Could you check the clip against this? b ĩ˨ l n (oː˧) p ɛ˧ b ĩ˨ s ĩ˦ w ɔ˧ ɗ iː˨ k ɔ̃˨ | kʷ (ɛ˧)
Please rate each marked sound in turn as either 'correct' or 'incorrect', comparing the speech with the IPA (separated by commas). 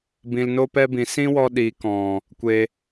incorrect, incorrect